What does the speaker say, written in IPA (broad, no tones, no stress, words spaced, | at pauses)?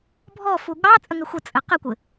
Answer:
bʱɔfu ɠɑ t͡sʼəŋɘxʷə t͡sʼɘqəkʷɘ